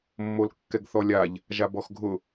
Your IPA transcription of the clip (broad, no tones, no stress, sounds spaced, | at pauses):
mː o l kː ɛ ɡ θ ɔ lʲ a ʎ | ʒ a b ɔ x ɡʱ ʊ